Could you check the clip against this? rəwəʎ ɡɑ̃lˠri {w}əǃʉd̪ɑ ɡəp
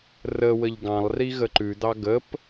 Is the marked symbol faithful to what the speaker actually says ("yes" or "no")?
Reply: no